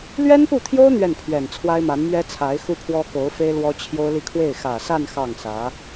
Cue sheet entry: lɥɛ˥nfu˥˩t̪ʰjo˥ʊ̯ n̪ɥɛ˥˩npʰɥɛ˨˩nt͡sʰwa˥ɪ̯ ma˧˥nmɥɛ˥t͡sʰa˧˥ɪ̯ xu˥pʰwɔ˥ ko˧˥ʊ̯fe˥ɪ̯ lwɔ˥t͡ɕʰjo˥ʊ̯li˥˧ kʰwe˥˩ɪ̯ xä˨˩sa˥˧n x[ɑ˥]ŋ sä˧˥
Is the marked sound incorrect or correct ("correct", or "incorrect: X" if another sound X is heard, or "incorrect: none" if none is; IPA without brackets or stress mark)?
incorrect: ɑ˥˩